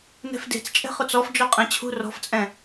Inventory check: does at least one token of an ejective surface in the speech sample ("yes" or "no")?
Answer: yes